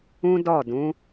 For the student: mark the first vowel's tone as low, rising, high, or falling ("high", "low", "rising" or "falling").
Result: high